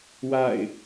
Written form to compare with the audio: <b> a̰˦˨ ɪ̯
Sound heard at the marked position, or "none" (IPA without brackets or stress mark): w